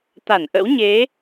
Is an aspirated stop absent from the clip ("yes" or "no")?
yes